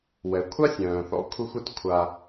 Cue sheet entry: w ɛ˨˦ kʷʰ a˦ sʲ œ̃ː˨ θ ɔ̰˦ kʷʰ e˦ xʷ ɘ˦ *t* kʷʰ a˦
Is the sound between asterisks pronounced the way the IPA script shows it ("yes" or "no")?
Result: yes